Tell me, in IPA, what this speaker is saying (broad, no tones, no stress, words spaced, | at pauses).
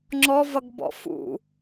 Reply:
ŋ͡ǁɔvʌɡbɔ̰ fṵ